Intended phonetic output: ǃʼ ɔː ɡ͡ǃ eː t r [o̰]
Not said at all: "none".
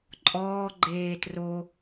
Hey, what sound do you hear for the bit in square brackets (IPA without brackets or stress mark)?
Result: o